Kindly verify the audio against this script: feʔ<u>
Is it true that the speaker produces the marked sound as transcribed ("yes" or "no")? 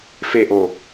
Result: no